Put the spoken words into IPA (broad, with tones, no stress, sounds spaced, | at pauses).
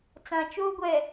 t͡s ã˨ t͡ʃ oː˦ ɡʷ ɛ˨